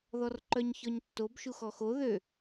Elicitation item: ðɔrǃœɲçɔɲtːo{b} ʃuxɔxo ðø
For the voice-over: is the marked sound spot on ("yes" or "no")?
yes